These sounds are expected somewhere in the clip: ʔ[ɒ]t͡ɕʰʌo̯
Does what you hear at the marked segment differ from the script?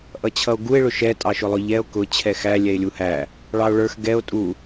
yes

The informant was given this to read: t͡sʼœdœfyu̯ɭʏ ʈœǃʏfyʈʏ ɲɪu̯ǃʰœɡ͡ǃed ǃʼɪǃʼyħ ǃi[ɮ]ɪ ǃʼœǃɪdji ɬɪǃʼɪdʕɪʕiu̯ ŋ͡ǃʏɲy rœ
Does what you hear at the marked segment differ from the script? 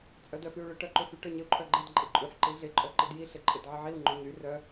no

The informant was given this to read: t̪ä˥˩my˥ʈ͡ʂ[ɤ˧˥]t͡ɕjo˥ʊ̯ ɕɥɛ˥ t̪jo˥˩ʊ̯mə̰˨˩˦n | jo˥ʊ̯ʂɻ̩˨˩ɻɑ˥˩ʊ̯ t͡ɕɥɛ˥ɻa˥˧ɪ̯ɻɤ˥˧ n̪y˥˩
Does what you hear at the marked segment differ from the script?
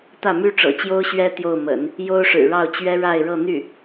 yes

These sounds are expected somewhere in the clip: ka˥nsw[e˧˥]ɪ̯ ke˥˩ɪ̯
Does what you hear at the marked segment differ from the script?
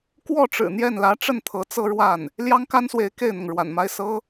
no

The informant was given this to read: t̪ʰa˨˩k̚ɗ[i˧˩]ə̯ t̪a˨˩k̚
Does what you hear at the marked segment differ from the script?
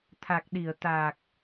no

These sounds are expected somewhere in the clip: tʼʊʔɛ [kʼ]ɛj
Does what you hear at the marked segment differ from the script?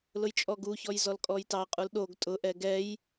yes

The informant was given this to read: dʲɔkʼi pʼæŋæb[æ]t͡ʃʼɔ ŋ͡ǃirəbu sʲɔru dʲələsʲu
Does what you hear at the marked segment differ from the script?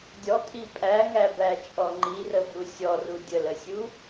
no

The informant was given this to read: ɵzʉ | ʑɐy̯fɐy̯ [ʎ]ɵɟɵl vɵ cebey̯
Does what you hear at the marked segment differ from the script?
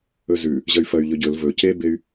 no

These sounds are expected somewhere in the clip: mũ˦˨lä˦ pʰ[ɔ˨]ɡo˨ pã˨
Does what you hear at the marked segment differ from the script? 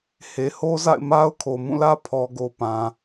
no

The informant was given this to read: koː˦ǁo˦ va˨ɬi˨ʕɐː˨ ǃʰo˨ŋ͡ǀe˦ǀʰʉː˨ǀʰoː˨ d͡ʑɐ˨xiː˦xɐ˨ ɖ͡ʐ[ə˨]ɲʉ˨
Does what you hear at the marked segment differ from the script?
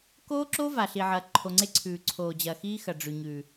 yes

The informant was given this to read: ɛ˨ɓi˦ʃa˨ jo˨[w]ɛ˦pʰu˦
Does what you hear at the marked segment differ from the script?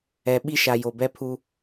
yes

